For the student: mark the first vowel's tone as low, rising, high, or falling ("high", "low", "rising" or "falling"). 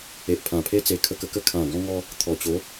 low